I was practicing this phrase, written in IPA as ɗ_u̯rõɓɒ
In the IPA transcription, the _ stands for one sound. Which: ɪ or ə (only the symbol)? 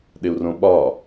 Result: ɪ